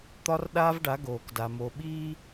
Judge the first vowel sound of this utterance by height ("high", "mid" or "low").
low